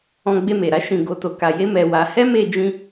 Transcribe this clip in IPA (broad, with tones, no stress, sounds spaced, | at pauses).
ɔ̃˧ ɡ͡b e˧ m e˨ ɾ a˨˦ ʃ ĩ˧ ɡ o˦ t o˧ k a˧ j e˦ m ɛ˧ w a˧ h ɛ˦ m e˧ d͡ʒ ĩ˧